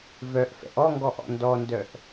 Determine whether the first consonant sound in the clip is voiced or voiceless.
voiced